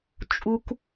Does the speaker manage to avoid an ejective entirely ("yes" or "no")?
no